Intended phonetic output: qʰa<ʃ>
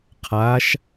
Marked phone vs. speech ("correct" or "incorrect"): correct